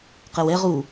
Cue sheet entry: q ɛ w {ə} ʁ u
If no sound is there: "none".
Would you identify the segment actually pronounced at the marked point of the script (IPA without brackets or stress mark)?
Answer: ɛ